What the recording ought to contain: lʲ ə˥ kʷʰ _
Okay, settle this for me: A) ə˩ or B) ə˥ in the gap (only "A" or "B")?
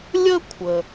A